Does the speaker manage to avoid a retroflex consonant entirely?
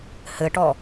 no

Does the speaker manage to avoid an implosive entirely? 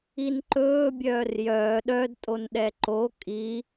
no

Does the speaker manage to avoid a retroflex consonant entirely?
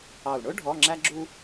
no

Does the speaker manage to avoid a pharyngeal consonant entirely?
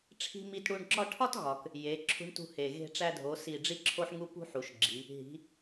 no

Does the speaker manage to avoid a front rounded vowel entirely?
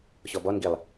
yes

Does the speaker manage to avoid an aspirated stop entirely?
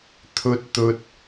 no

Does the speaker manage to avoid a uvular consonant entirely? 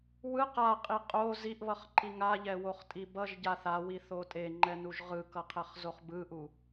no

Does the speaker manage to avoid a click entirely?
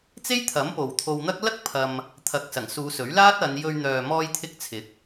yes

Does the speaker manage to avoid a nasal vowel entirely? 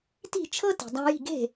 no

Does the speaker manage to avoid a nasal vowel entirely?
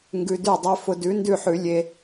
yes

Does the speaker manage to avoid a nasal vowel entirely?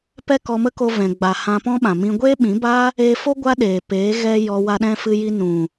no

